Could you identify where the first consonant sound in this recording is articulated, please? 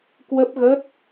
velar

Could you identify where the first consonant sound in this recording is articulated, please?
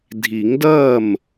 alveolar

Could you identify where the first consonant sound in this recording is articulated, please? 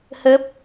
glottal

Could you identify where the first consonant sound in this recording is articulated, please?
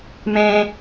labial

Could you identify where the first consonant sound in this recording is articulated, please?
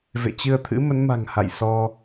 labial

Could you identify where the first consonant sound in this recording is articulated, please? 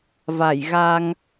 labial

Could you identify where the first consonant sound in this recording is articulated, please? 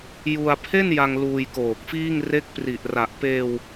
palatal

